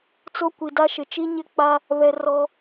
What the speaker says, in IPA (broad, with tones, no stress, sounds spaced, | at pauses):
t͡s o˦ kʷ i˨ d a˦ ʃ ɪ˨ t͡ʃ i˦ ɲ ɪ˦ k͡p a˦ | β ɛ˦ r ɔ˦